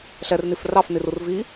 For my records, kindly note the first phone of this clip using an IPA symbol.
ɬ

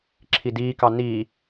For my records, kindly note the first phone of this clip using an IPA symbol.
ǁʰ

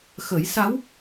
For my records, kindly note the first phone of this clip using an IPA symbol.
x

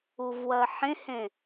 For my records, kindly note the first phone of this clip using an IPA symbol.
u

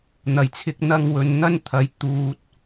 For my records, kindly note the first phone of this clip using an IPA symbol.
n̪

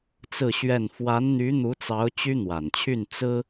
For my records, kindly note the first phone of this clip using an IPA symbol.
t͡s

